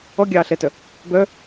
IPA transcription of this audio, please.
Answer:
ɔ ɡʲ ɑː ɬ ɛ t œ | b œ

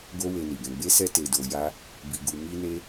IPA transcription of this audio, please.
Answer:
ɡ o˦ w e˧ n i˨ ɡ ɛ̃˧ ɡ͡b e˦ s ɛ˦ t e˧ d o˧ j a˦ | b i˧ ɡ u˧ m i˦ n e˦

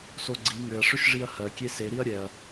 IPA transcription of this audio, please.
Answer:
s o ɡ͡ǀ i ŋ ʏ ɐ̯ ʂ ʏ ʃ ʐ i ɐ̯ h ɜ kʲ e s e ɾ i ɐ̯ ɾʲ ɛ ɐ̯

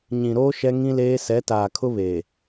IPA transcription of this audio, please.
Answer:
ɲ ĩ˨ ɾ oː˦ ʃ ɛ˦ ŋ ĩ˦ l eː˦ s ɛ˨˦ t aː˨ kʰ ʊ˦ β eː˨

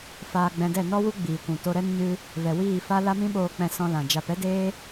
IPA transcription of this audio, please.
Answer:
f aː˧ ɡ͡b ɛ̃˧ d ɛ˦˨ n ɔ˦ w u˦ ɡ͡b iː˨ kʷ ũ˨ t o˧ ɾ ɛ˦ n ɲ ɨ˦ | v ɛ˨ w iː˦˨ f a˦ l a˦ m ĩ˦ ɓ oː˧ k͡p ɛ̃˧ s ɔ̃˧ l ã˨ d͡ʒ a˧ p ɛ˦ d eː˦

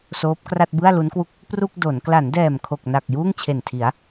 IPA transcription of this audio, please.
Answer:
s oː˦˥ p̚ k r a˥˩ t̚ b ɯ˥˩ a̯ l u˦˥ n k w u˥˩ k̚ | p r u˥˩ k̚ d o˩˦ n k l a˩˦ n d ɛː˨˩ m kʰ o˨˩ k̚ n a˨˩ k̚ j uː˥˩ ŋ t͡ɕʰ e˨˩ n tʰ i˩˦ a̯

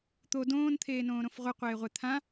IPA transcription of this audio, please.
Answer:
t̪ o d õː n t̪ʰ eː n õː ɾ õ f ʁʷ ɤ qʷ eː ʁʷ ɛ t̪ʰ ã

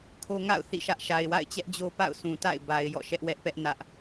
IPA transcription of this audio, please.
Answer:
kʰ o˦ ŋ a̰˦˨ ʊ̯ θ ḭ˦˨ ʃ ä˦ ʔ ʃ a˨ ɪ̯ w a̰˦˨ ɪ̯ t͡ɕ ɛ˦ ʔ d͡ʑ o˦ p a̰˦˨ ʊ̯ s ũ˨ t a̰˦˨ ɪ̯ b a˨ ɪ̯ j ɔ̰˦˨ ʃ ɛ˦ ʔ w ɛ˦ ʔ p ɛ˦ ʔ n ä˦ ʔ

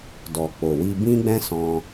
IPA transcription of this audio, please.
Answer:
d ɔ˨ k͡p o˨ w i˧ b ĩ˦ ɡ͡b ɛ̃˦ s ɔ̃˧

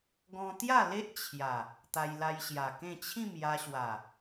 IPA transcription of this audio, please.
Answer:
ɡ ɔ̃˧ t̪ j a˥˧ l e˦ ʔ t͡ɕʰ j a˨˩ | t̪ a˧ j l a˧ j ɕ j a˨˩ k ẽ˥˧ t͡ɕʰ ĩ˥˧ m j a˧ ɕ w a˨˩

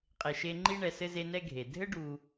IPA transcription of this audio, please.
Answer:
qʼ e˨ ʃ e˦ ŋ͡ǃ i˥ ɳ ɛ˨ s ɘ˥ z e˦ n ɛ˥ ɡʱ e˩ dʱ ɘ˥ ɖ u˨

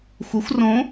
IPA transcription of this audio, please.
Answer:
xʷ ɐ xʷ r õ

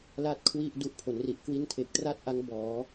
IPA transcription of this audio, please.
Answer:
l a˥˩ t̚ kʰ w i˥˩ ʔ d u˦˥ ʔ pʰ o˩˦ n r i˨˩ ʔ k w i˥˩ n tʰ e˨˩ k̚ t r a˥˩ t̚ ʔ a˦˥ ŋ b ɔː˩˦

